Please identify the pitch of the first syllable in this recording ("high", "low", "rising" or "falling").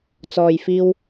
low